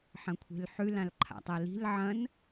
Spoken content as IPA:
ħ ɐ̃ kʷʰ e̤ l ħ ʉ l ã l ǃʰ a̰ tˤ a l i̤ l ʕ ɐ̃ n

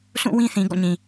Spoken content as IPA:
s ũ˦˨ w ĩ˦ θ ĩ˨ ɡ ɔ̰˦˨ ɲ ĩ˨

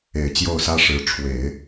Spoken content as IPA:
e˨˩ ɪ̯ t͡ɕ j o˥˩ ʊ̯ s ä˥ ʂ ɻ̩˧˥ ʈ͡ʂʰ w e˨˩˦ ɪ̯

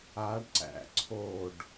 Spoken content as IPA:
a ɖ ǀ æ̰ ǀʰ o ɖ

